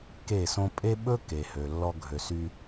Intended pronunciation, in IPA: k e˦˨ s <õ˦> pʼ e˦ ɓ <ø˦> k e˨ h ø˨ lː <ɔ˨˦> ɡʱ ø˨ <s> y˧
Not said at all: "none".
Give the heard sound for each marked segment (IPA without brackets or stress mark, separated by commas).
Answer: õ˦, ɵ˦, ɔ˧, s